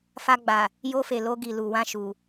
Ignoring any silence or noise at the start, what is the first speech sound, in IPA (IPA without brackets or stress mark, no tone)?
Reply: f